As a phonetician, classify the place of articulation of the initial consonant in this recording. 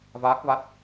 labial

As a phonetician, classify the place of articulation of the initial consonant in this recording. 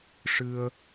retroflex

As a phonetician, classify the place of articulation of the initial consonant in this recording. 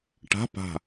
retroflex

